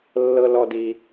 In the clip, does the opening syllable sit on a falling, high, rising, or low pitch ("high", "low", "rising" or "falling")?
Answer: high